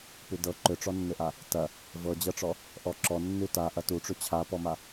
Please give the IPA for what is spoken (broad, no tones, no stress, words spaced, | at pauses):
pʉdɤ ǃʏʈ͡ʂɔnːʏʔa | tɐ | vɤd͡ʑɤʈ͡ʂɔ | ʔɔǁɔ nːʉta ʔɐtuʈ͡ʂʉ t͡ɕʰapɔma